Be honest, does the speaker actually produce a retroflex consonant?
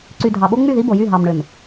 yes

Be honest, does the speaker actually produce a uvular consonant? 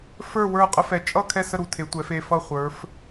yes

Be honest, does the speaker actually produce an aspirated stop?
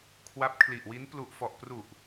yes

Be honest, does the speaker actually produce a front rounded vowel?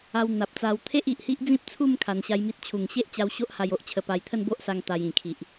no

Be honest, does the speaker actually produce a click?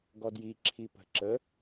yes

